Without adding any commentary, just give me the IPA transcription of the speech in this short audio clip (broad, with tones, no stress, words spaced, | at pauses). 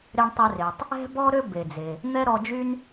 ɾe˧ɳtˤɛ˧re˩tˤ | ɛ̤˥bɔ˥ ɾø˥be˩d͡ze˩ | n̪ɛ˥ ɾɔ˧d͡ʒy˥n